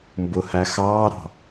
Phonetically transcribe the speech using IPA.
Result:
mbʊhæ xɑːɾɑ̤

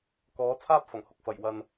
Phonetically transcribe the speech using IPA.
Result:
kɔː˨˥ t͡sʰaː˥p̚fɐ˨˩ŋhʊ˧k̚fɐ˨˩j wɐ˨n

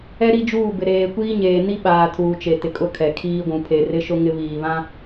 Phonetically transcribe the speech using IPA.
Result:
ɛ˦ ɾi˦d͡ʒuː˦˨bɪ˨ ɾeː˨kʷiː˦ ɲeː˨ ni˦ɓaː˨ tʰuː˨t͡ʃe˨ tɪ˨kʼʊ˦kʰɛ˨ kʰiː˦ɡʷũ˨ pʰe˨rɪ˦ʃʊ˦ ŋɪ˦ βiː˨βã˦

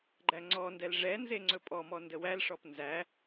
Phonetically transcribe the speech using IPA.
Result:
ɡ͡ǃæŋ͡ǀɔndɛl ʐɛnze ŋ͡ǀɵpʼɔmɔ ndəwælʂɔp nzæ

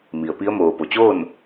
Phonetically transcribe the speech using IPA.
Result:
mi˩ə̯pi˧˥ə̯ moː˩po˩t͡ɕoː˥˨n

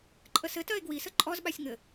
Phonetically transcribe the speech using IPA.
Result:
ǃʼəsɘtɜe̯ ɡwi səǃʼɔzɓasʲ ŋɘ

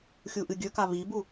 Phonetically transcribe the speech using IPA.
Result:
xʲuʔɨɡʲɵka βibu

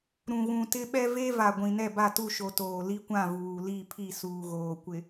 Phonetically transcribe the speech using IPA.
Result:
ɾũ˨ɣũ˨tɪ˦ɓɛ˦ ve˦va˨ ɡʷĩ˨nɛ˦˨ba˦˨tu˦˨ ʃo˨toː˨li˦kʷã˦˨ vuː˨li˦˨pʰi˦˨ suː˨ɣoː˨kʷɪ˨

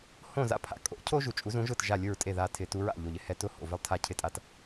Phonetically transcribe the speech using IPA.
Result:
hõ˥˩ za̰˥pʰa̰˩˥ kʼo̰˩˥cʰo˥ ʒu˩ t͡ʃʼu˩˥zũ˩˥ʒʊ˥˩t ʒa˥˩lʲʊ˥˩ɹtʼe˥˩ ða˧tʰɪ˩˥ tu˩˥ɹa̰˥˩ ʎo˩ʎ ɪ˥hɛ˧ tʊ˥ ho̰˩vɪ˥lˠtʰa˥˩ cʰɪ˥˩tʼa˧t

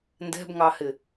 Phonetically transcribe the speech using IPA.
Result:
ndɛ̤bŋɑhɪ

